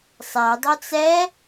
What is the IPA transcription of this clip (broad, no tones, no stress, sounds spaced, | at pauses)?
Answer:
sˤ æ dˤ ɵ t͡s ɛ